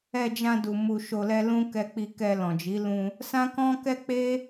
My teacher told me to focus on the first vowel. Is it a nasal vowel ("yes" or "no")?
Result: no